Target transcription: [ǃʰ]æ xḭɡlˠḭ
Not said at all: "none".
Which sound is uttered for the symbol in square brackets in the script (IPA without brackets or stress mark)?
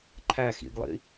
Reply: ǃʰ